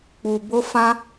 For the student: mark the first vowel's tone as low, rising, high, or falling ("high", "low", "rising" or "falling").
low